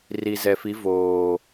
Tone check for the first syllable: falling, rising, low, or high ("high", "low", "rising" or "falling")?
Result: low